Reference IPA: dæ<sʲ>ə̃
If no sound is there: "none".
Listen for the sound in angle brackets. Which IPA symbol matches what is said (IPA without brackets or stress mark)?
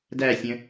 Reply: sʲ